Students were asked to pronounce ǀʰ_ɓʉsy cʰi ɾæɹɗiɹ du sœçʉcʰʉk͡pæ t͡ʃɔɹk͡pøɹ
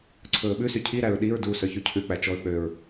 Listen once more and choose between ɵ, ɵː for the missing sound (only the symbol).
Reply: ɵː